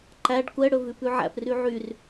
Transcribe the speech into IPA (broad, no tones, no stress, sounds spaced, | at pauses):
ǃ æ ɖ kʷ ɛ ɽ ɵ v ʉ p ʉ ʕ æ̰ p r y ʕ y r